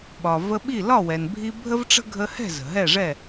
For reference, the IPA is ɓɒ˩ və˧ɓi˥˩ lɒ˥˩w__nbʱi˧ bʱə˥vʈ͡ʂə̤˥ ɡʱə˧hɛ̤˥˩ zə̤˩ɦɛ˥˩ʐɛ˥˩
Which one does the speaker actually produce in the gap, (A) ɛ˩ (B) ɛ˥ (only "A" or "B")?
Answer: A